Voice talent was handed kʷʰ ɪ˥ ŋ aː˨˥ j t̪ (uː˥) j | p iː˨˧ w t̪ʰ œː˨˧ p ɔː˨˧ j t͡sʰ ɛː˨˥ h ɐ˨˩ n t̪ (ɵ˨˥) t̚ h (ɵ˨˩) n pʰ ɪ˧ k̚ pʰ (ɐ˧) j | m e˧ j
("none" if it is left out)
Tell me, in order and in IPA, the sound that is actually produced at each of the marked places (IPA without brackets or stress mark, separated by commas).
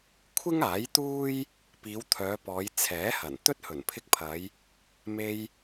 uː˥, ɵ˥, ɵ˨˩, ɐ˨˧